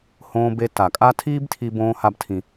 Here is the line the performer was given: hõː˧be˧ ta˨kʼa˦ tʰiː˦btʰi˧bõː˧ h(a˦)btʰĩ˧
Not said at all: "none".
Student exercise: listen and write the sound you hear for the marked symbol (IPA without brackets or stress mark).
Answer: a˦